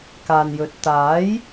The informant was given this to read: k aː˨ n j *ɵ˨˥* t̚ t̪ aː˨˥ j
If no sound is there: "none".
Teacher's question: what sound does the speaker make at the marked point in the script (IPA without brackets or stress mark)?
ɵ˨˥